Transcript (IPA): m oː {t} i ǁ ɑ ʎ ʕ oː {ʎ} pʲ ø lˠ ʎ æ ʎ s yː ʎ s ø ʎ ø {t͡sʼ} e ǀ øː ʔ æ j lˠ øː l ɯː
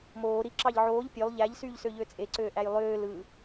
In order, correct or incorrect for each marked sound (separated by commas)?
incorrect, correct, correct